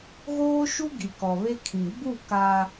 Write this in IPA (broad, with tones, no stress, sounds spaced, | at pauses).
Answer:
ɣ oː˦ ʃ u˦ ɡ i˨ k ɔ˨ β e˦ kʰ ĩ˨ ɡ͡b u˦˨ k aː˦